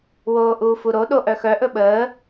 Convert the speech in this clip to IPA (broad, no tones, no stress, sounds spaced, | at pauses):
w oː ʔ uː f u ɾ o ɗ o ʔ œ x œ ʔ ɵ ɓ əː